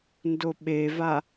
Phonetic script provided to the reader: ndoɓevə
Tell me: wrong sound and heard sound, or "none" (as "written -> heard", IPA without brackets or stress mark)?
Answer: ə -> a